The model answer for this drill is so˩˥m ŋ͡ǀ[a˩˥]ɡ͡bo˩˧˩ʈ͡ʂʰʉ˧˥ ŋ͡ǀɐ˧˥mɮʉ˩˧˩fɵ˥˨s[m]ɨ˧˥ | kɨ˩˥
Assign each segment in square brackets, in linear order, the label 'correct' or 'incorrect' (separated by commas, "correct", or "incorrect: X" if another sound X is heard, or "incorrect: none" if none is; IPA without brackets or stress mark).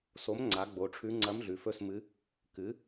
correct, correct